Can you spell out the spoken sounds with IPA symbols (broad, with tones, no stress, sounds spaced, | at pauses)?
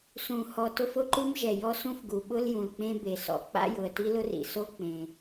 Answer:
s ũ˩ h ɔ˩ t ʊ˦ f ʊ˦ ǃ u˦ m ʒ ɛ˩ j ɔ˦ s ũ˦ f ɡ u˩ ɓ ʊ˦ l j ũ˩ l k͡p ẽ˦ b e˩ s ɔ̰˩ k͡p a̰˦ j ʊ˩ ə̯ t i˦ l ʊ˦ r ḭ˩ s o˦ k͡p ẽ˩